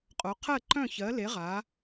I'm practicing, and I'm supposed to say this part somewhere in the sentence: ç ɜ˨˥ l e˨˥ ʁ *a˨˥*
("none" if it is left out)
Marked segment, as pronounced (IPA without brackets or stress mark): a˨˥